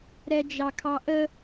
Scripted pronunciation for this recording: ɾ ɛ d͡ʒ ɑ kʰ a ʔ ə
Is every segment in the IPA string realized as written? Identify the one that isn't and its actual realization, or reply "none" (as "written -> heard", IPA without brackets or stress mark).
a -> ɑ